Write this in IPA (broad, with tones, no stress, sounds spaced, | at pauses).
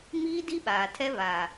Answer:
m iː˦ d i˦ ɓ aː˨ tʰ ɛ˦ β aː˨